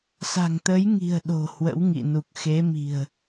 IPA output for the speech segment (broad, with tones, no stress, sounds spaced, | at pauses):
s a̤˨˩ ŋ t̪ ə˨˦ j ŋ i̤˨˩ ə̯ ɗ o̤˨˩ h w ə̰˧˥ w ŋ ḭ˧˨ n u˨˩ k̚ x e˨˦ m i̤˨˩ ə̯